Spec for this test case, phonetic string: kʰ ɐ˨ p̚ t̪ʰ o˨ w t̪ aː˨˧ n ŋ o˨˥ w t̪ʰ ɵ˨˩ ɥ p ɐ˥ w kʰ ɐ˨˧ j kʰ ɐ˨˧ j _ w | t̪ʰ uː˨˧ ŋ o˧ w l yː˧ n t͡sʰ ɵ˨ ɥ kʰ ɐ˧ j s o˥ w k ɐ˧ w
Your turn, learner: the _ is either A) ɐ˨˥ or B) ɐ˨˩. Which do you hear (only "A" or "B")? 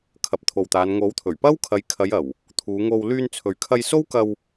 B